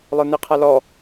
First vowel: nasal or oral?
oral